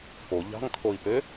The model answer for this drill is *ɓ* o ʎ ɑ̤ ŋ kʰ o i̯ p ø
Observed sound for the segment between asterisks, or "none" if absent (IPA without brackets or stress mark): p